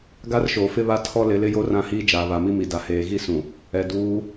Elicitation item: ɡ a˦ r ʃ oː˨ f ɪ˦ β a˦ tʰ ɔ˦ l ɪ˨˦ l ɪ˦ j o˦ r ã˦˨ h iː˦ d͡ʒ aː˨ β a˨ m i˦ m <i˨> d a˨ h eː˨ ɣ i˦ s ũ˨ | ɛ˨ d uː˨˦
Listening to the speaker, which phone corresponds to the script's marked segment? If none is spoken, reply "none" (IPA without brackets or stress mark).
i˨